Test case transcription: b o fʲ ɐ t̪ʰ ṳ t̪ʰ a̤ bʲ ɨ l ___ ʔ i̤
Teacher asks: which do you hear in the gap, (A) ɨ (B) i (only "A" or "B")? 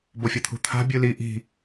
B